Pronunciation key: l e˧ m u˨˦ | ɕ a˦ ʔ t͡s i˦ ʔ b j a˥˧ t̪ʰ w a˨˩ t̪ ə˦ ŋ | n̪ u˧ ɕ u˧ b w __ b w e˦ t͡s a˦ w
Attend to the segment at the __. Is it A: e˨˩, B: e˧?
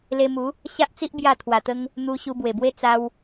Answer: A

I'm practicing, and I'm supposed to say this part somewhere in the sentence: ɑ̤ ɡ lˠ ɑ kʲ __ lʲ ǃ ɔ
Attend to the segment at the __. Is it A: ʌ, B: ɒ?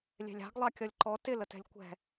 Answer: A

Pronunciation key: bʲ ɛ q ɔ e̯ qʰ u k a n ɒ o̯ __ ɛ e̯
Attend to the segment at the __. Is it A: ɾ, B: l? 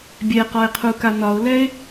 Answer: B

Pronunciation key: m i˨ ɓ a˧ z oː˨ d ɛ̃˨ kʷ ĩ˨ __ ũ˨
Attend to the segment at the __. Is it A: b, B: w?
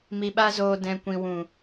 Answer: B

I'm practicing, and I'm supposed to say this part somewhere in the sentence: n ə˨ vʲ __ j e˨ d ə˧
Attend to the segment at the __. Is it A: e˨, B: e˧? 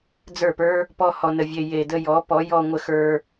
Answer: A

